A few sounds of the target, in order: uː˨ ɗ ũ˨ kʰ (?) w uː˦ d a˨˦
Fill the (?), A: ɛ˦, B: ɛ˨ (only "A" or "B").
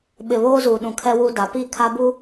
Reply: A